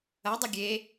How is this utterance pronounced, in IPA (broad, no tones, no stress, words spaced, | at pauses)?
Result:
ɐdˤɘ ɡʲe